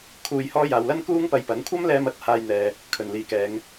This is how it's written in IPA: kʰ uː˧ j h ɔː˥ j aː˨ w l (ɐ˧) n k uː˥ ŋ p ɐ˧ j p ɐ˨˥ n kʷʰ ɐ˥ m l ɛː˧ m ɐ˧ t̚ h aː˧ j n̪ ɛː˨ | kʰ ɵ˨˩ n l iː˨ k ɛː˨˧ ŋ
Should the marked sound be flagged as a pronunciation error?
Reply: yes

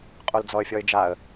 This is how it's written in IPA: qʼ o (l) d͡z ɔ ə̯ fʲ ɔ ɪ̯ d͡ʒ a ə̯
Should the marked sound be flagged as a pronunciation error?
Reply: no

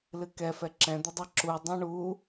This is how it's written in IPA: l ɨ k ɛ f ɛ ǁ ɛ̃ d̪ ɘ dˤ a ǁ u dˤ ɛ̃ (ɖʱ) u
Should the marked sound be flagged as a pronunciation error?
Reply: yes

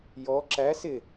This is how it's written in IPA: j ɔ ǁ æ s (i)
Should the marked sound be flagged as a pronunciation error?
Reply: yes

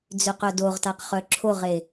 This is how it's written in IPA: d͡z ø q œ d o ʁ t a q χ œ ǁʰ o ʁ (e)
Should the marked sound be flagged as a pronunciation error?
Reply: no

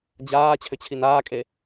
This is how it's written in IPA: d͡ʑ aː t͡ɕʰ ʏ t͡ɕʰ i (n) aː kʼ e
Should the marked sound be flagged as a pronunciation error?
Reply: no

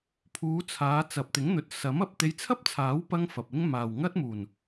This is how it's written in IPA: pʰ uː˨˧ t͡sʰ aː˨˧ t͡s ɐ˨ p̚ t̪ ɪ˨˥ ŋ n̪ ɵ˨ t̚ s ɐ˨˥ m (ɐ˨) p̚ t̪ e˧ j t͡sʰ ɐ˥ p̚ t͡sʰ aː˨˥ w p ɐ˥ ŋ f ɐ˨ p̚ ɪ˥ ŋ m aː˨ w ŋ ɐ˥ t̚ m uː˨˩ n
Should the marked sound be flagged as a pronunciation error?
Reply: no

